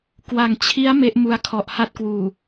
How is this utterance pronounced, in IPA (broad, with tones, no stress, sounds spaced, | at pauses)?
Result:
k w a˨˩ ŋ t͡ɕʰ i˦˥ a̯ m e˦˥ ʔ m u˧ a̯ kʰ ɔ˨˩ ʔ h a˥˩ t̚ k w uː˨˩